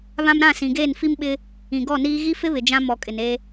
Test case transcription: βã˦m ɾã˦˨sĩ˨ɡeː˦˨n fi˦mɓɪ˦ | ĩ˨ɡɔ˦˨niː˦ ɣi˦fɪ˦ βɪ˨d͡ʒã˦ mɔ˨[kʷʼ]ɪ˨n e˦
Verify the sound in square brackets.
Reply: incorrect: kʼ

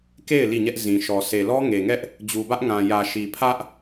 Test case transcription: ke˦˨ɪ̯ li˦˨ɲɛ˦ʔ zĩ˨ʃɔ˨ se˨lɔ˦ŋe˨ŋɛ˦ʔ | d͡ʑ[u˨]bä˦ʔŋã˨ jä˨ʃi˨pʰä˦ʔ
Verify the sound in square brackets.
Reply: correct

